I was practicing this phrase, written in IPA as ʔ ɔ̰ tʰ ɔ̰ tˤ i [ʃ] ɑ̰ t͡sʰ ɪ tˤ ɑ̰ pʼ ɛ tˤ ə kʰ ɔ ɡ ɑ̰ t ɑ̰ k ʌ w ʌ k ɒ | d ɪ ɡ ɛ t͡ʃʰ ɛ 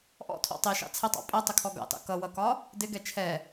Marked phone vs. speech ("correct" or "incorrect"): correct